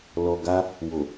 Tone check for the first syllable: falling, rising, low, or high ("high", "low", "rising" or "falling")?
low